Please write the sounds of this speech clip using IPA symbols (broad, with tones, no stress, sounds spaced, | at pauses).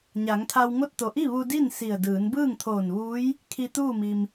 ɲ a˩˧ ŋ t̪ʰ a˧ w ŋ o˥˨ t̚ t̪ o˧˩ ʔ i˥˨ ʋ u˧ d i˥˨ n s i˧˩ ə̯ d ɯː˩˧ n b ɯː˥˨ ŋ t̪ʰ oː˧˩ n ʋ uː˧˥ j | kʰ i˧ t̪ uː˥˨ m i˩ m